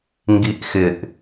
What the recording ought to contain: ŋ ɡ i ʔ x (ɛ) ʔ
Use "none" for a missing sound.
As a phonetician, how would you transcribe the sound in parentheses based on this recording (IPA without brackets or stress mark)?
ɪ